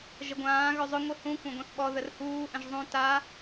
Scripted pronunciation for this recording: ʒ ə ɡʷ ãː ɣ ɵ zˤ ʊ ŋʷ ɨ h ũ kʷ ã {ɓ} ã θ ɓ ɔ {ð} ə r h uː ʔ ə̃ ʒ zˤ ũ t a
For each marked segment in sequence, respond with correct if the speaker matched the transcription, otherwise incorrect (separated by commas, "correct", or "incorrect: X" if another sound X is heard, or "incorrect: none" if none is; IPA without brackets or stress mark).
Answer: incorrect: ɡʷ, correct